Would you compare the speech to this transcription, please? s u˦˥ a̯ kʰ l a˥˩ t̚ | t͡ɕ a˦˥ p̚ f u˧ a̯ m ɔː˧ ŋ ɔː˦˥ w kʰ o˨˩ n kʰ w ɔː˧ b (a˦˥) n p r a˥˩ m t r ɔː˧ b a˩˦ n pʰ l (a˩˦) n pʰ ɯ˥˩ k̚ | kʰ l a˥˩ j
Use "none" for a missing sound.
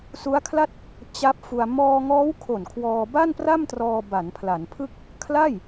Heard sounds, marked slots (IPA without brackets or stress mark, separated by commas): a˥˩, a˩˦